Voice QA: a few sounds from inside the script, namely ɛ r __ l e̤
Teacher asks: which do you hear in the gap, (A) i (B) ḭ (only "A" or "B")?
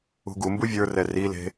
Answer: A